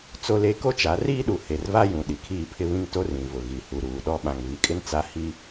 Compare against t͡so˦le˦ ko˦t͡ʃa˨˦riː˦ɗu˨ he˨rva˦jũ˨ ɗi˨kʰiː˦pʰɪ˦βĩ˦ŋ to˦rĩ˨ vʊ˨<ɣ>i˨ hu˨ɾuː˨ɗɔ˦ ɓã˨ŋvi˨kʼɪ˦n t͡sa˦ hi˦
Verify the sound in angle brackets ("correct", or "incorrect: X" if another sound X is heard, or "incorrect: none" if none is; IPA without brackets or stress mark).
correct